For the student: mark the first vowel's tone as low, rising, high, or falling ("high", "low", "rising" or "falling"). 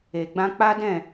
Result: low